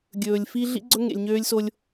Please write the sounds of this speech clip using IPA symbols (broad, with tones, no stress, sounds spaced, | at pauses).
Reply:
ɡʲ ɵː˨ lʲ f i˦ ɮ ḭ˦ ɡ͡ǀ ɵ˦ ŋ ḛ˨ lʲ ɲ øː˦ lʲ s o˦ lʲ